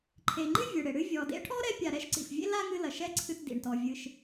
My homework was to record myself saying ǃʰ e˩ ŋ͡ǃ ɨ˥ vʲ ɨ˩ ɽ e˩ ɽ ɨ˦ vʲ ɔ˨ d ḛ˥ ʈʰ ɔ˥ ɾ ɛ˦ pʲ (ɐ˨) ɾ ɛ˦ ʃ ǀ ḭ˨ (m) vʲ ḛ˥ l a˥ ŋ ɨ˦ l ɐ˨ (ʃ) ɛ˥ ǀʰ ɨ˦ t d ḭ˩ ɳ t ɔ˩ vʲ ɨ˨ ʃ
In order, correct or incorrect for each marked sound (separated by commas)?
incorrect, incorrect, correct